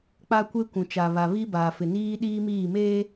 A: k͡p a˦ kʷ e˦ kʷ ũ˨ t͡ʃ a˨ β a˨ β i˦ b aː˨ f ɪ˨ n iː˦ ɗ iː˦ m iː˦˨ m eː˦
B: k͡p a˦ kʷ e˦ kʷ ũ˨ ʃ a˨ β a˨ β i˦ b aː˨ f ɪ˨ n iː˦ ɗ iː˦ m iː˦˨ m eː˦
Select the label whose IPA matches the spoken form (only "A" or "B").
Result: A